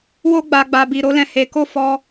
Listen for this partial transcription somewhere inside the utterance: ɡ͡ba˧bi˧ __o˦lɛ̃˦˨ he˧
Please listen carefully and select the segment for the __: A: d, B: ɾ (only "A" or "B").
B